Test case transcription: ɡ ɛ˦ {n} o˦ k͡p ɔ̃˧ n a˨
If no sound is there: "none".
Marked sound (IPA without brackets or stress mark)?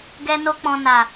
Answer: n